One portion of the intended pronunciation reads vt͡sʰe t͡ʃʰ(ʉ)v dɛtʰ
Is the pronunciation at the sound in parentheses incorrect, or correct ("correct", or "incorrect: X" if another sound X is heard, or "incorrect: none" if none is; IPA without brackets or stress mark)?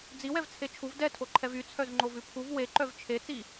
incorrect: u